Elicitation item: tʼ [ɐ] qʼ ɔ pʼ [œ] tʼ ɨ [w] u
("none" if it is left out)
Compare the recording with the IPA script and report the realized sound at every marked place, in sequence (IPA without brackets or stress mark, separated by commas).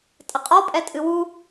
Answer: ɐ, ɛ, w